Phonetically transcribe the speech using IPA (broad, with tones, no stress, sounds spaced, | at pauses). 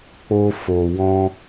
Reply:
k͡p o˧ f o˨ w ɔ̃˧